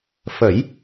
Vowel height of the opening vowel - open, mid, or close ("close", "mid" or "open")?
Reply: mid